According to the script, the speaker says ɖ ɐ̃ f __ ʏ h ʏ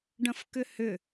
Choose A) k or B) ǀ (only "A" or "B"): A